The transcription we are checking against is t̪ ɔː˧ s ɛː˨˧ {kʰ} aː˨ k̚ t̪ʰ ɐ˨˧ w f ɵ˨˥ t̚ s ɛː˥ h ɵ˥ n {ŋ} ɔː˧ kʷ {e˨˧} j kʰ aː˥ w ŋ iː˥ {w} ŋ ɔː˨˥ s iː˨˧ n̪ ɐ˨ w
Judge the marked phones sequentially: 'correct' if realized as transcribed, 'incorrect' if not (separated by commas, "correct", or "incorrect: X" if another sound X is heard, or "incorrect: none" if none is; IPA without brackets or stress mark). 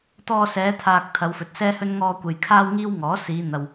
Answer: incorrect: t̪ʰ, correct, incorrect: e˨, correct